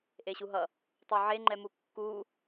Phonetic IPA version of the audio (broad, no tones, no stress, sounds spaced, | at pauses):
ʔ e ɕ u ɦ ʌ | tˤ o ʕ e ŋ͡ǃ ɛ m u kː u